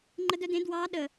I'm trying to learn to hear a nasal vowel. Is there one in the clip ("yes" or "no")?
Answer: yes